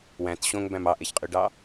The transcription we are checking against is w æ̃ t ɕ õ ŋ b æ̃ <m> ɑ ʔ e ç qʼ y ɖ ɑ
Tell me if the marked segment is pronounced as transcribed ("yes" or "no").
yes